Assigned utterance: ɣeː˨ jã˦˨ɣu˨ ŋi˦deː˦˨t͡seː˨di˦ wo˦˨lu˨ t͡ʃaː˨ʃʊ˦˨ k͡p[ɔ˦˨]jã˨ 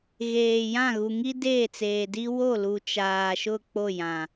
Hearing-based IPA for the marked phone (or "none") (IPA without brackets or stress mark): o˦˨